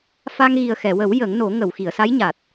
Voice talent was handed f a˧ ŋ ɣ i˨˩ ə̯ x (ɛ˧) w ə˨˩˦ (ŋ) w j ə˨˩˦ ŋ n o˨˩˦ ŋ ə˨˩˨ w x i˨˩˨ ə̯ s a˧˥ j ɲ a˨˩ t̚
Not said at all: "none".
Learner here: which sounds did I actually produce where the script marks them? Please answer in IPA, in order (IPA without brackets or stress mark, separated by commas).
ɛ˨˩˨, none